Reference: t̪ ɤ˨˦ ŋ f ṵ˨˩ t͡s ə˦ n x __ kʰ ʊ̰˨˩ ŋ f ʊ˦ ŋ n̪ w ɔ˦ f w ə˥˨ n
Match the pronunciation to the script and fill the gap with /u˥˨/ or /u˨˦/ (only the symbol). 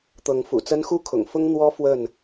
u˥˨